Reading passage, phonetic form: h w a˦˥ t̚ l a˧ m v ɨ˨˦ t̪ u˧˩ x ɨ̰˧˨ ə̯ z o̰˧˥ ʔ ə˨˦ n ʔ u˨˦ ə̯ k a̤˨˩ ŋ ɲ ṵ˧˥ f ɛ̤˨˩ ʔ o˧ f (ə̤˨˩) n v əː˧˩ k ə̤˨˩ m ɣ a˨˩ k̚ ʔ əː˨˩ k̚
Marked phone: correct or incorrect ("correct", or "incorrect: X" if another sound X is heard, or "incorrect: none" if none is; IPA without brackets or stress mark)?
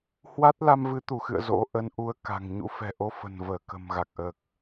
correct